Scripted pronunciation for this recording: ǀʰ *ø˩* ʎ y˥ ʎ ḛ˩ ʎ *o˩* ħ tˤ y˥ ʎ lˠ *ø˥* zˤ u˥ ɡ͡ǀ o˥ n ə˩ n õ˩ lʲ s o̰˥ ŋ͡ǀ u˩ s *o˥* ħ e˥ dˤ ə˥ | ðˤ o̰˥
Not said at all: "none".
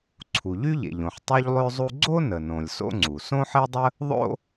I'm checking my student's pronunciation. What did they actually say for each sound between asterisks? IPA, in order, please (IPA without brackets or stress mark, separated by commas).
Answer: u˩, õ˩, ø˥, õ˥